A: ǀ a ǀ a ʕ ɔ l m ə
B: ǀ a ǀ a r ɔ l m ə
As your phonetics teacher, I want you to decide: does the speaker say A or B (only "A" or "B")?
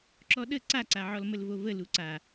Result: A